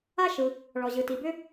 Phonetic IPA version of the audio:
a˥ ʃ ɯ˩ | ɭ ɔ˩ ʑ ɯ˩ t i˩ b ʏ˥

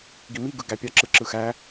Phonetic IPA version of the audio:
ɡ i m i ɡ ɯ ɡ æ pʲ ɑ ǁ ɯ ǁ ɯ x æ

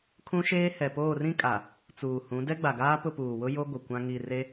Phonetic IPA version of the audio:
kʰ ũ˦ ʃ eː˦ h ɛ˨ p oː˦˨ r ĩ˦ kʼ a˨ | t͡s uː˨ h ũ˨˦ d ɛ˦ ɡ͡b a˨ ɡ aː˦ p ʊ˦˨ p uː˨ w ʊ˦ j o˦ ɡʷ ɪ˨ kʷ ã˦ ŋ i˦˨ r e˦

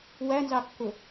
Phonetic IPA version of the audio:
w æ n z ɑ kː ʊ

